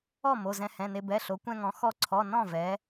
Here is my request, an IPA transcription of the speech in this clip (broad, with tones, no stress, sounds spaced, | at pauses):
ɔ˥˩ m o˩˧˩ z ɛ̃˧ h ɛ̃˩˧˩ n e˧ b ɛ˩˧˩ ɬ o˩˧ kʷ ɛ̃˧ ŋ ɔ̃˩˧ x ɔ˧ ǀʰ ɔ˩˧˩ n ɔ̃˥˩ v ɛ˩˧